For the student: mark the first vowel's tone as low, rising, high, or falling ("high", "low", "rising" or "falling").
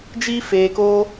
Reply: high